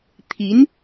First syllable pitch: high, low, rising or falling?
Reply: rising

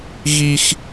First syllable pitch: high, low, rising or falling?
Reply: high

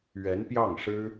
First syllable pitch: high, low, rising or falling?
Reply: rising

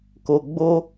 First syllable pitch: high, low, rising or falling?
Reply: low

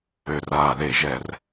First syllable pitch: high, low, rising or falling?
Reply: low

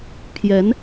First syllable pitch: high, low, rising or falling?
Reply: rising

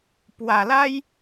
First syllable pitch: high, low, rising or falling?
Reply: low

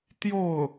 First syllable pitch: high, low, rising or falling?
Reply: falling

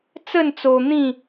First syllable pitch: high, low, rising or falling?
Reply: falling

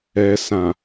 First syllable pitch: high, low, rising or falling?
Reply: low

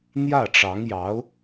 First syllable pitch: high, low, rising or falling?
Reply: falling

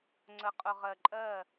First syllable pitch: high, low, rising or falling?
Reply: low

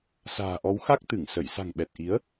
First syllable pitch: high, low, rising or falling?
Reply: low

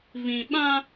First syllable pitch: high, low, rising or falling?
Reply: low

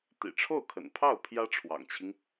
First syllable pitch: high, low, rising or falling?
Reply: low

